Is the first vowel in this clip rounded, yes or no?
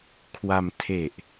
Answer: no